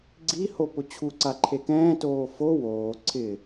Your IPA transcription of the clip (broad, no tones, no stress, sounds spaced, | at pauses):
ɡ͡ǀ i h o p ʊ t͡ɕʰ u ǀ a ǃʰ e k ɛ̃ː t oː f o w oː ǀʰ ɪ